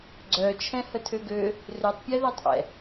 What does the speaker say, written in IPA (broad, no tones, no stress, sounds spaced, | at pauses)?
ɡ͡ǀ œ t͡ʃʰ ɛ̃ h ə tʰ ø ɡ ø | r ø tˤ pʲ ɛ ð œ tˤ ʔ ɛ̰